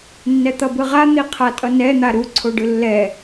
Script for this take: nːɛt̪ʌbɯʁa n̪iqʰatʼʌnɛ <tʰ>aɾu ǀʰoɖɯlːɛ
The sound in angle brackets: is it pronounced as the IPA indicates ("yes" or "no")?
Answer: no